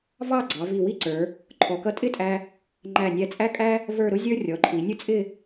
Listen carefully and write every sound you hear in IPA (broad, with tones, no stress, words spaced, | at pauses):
vɑ˥˧ɡ͡ǀɑ˩˧ vi˧˩wi˥ǀə˞˩˧ | ǃʰɔ˩˧kʌ˧tʼɪ˥˧tʼæ˧ | ŋ͡ǃæ˧˩nʲæ˧t͡sʼæ˥kʼæ˥ | və˞˥˧ ɾʊ˥zʲə˞˥ rʲɔ˩˧ǃʰi˩˧nʲʊ˥t͡sʼɪ˥˧